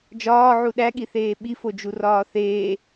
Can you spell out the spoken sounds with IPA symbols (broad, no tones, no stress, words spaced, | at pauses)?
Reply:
d͡ʒɒːʕu ɗæɠiθeː ɓifod͡ʒurɒː θeː